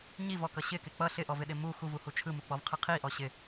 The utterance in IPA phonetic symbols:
ɲivɔkʌ ɕɪkɪ k͡pʌ ɬɪʔɔvɪɗɪ mu xuvuhu t͡ʃʰɯmuk͡pɔvqʰɯ qʰiʔɔ ɕɪ

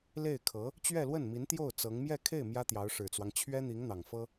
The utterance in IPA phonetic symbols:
le˥˩ɪ̯kʰɤ˧˥ | t͡ɕɥɛ˥˧lwə˥˩nmi˧˥n t̪jo˥˩ʊ̯ t͡sɤ˧˥ŋ mjɛ˥˧kʰe˥˩ɪ̯ mjä˥t̪jɑ˧˥ʊ̯ʂɻ̩˨˩t͡swɑ˦ŋ t͡ɕʰɥɛ˥n̪i˧˥ŋ n̪ɑ˨˩ŋfɤ˥

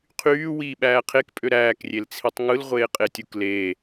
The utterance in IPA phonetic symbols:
qʰyː wiːɓæːqʰekpʼø ɾæːkrʲelt͡sʰitˤ ŋɯlʁʷeːqʼetʲuk leː

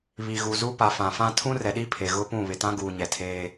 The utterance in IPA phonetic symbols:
βi˨ɣu˨zu˦pa˨ fã˨fã˦ tʰũ˦rɛ˨ɗi˦ pʰe˨ ɣʊ˦pũ˦˨ βɪ˨tã˦ ɡuː˨ɲɛ˨tʰeː˦

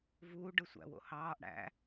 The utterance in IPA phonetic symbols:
vuː ɖɯsʷæ̰wo̰ hɑːʔ ɽæ̰

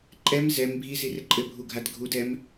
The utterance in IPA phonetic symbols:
ǃʼɛm zɛm bʱizirɘ ǃʼɘbʱuɡʱad ɡʱudɛm

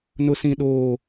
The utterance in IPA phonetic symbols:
nʊ˦sĩ˦ɗoː˦

